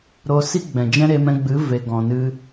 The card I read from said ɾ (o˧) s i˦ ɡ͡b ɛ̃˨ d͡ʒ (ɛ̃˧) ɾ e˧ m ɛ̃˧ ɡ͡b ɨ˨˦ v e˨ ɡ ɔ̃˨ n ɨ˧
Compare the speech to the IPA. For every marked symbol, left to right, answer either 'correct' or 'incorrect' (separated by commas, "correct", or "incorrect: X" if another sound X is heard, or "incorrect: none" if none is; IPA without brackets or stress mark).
correct, incorrect: ɛ̃˦